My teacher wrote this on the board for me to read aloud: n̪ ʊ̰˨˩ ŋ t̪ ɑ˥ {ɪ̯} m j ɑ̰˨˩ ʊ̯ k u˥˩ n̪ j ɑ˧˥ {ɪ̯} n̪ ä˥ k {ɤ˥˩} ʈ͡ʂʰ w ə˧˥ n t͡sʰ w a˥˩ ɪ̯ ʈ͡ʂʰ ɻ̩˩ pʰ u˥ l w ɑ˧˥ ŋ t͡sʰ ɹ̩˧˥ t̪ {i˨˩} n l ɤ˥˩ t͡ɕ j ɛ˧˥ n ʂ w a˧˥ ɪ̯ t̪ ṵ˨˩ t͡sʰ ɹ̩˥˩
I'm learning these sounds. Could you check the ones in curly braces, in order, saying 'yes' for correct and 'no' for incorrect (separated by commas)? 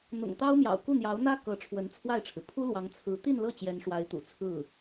no, no, no, no